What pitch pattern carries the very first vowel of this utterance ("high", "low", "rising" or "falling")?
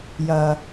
low